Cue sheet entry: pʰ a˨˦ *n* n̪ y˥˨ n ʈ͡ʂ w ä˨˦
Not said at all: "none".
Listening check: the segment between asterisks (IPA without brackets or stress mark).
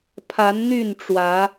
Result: n